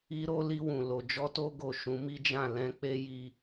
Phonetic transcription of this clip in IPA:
i˧ ɾ o˧ l i˧ w ũ˨ l o˨ d͡ʒ ɔ˧ t o˧ ɡ o˨ ʃ ũ˨˦ m i˦ d͡ʒ ã˦˨ l ɛ̃˧ k͡p e˧ j i˦

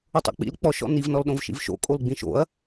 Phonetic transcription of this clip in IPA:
ʊ tˤ o̰ k͡p ḭ l k͡p ɔ ʃ ɔ̰ n i v n ɔ l ɗ õ v ʃ ḭ v ʃ o̰ kʼ o l ɡ͡b ĩ ʃ o̰ ɐ̯

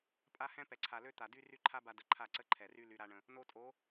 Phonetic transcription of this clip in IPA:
pʼ a˦ h ɛ̃˦ p ɛ˨ ǀʰ a˨ l ø˦ t̪ a˨ d y˦ r y˦ ǃʰ a˦ b a˧ d ə˨ ǃʰ a˦˨ ǀ ə˦ ǃʰ ɛ˨ r y˦ l y˧ ɾ a˦ ɳ ə̃˧ | n o˧ tʼ o˨˦

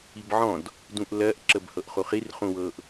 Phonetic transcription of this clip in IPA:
i b ʕ ɔ̃ d | d ũ ʔ l ɜ ʔ ǁ ə b h ɤ ʔ χ u χ i r χ ũ w ɤ ʔ

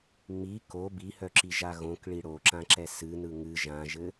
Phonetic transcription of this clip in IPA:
ŋ͡m i k o b i h œ ǁ i ʒ a ɣ õ k ɭ i ɽ o ǁ ã ǁ ɛ s ɨ n ɯ ŋ ɨ ʒ ã ʒ ɘ

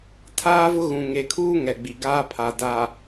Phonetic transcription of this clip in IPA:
tʰ aː˦ v ʊ˦ ɣ ũ˨ ŋ e˨ kʰ uː˦ ŋ ɛ˨ ɡ͡b i˨ ɡ aː˦ pʰ a˨ d a˨

